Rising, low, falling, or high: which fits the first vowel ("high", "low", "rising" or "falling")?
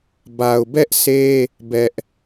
low